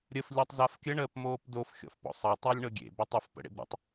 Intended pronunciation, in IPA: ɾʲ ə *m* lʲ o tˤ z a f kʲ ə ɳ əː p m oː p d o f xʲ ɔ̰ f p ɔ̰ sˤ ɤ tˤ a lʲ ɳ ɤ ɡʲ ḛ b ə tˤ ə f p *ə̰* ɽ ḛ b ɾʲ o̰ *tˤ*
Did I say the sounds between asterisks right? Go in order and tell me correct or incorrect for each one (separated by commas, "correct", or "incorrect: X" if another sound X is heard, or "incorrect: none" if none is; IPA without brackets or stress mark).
incorrect: f, correct, correct